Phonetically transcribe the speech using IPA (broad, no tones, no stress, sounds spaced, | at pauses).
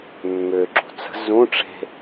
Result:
mː ʏ ǁ ṳ t͡s ə̤ z ũ ʈ͡ʂ e̤